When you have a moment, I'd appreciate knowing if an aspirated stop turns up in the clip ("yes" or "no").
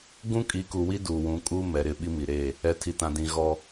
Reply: yes